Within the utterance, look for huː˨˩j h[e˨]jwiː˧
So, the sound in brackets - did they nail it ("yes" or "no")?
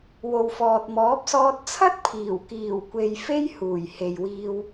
yes